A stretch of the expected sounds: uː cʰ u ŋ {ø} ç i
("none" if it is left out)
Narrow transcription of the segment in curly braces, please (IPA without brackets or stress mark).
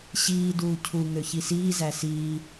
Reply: ø